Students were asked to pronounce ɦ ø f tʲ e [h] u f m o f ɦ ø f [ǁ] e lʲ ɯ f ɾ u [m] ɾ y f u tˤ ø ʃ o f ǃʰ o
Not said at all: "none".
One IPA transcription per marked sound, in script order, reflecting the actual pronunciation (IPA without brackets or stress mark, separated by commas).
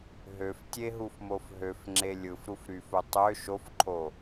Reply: ɦ, ŋ͡ǁ, f